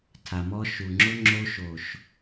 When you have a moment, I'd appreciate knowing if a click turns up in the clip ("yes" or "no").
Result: yes